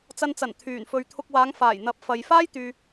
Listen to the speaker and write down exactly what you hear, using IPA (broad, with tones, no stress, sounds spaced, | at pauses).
t͡s ɐ˧ n t͡s ɐ˨˩ n t̪ʰ yː˨˩ n f ɵ˨ ɥ t̪ʰ ʊ˧ k̚ w aː˨˧ ŋ f aː˨˩ j n̪ ɐ˨˥ p̚ f ɐ˨ j f aː˥ j t̪ yː˨